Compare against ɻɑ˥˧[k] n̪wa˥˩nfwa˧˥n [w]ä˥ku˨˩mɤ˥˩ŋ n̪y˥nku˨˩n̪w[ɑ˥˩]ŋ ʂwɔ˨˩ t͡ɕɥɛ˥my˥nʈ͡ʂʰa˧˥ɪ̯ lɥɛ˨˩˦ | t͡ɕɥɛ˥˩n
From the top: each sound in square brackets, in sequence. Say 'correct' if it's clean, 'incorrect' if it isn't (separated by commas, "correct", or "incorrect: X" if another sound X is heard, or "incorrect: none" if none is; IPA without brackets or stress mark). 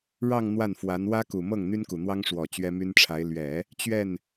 incorrect: ŋ, correct, incorrect: ɑ˥